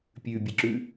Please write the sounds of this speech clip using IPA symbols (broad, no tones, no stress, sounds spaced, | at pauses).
pʲ ʉ bʲ ɨ ǁ ʉ